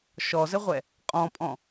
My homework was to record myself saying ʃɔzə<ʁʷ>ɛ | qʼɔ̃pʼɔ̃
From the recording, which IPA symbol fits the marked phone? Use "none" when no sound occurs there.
ʁʷ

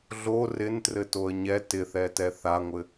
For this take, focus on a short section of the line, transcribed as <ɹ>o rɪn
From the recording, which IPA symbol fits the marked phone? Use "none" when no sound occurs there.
ɮ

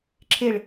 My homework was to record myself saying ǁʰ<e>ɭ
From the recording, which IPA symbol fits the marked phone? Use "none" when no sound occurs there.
e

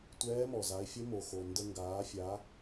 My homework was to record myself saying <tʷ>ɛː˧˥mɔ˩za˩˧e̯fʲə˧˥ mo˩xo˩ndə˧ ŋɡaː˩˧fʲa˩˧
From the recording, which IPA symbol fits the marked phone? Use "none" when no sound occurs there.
tʷ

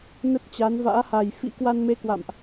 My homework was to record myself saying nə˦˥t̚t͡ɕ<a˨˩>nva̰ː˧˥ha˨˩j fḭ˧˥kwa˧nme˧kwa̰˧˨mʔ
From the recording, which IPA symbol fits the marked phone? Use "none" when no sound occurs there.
a˨˦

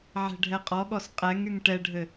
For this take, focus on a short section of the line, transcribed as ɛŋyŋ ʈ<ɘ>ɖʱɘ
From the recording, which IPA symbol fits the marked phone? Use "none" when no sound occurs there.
ɛ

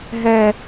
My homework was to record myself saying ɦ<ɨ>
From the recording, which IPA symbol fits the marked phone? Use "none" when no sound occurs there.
ɛ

